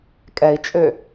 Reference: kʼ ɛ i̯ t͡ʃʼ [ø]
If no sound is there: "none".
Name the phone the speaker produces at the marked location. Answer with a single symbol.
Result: ø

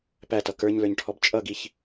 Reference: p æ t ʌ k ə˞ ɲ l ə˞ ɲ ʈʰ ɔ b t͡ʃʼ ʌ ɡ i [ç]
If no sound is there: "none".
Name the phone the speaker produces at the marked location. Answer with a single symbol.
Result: ç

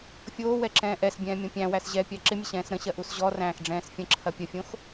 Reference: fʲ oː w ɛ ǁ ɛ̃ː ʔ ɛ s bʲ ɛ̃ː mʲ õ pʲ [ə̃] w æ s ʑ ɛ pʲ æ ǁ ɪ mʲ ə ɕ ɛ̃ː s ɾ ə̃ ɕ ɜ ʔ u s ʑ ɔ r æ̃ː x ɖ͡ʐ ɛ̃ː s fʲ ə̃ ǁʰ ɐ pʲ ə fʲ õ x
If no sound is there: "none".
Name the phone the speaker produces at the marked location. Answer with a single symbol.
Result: æ̃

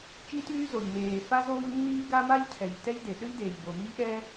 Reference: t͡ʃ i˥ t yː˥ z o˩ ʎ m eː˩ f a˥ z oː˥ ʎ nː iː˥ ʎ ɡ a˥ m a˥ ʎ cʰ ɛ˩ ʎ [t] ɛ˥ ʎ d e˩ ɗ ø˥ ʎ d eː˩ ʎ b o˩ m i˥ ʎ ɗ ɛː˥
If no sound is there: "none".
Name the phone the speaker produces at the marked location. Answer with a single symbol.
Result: t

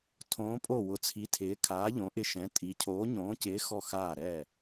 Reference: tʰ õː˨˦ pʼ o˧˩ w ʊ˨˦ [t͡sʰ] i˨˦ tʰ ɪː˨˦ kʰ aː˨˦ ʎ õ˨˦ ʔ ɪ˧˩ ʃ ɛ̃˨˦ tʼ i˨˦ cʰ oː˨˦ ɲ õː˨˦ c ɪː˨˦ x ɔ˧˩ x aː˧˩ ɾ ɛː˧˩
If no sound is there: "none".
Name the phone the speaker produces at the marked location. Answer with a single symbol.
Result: t͡sʰ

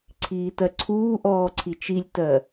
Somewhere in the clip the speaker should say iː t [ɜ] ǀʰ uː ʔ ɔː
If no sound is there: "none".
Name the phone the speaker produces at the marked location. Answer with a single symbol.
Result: ɜ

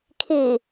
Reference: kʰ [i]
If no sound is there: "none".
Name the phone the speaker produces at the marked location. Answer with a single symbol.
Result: i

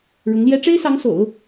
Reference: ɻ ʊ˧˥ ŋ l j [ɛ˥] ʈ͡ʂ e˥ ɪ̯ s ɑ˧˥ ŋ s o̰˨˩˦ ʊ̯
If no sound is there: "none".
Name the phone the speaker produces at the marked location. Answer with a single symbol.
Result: ɛ˥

